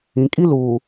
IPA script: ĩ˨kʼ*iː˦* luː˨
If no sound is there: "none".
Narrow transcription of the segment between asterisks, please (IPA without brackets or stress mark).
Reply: i˦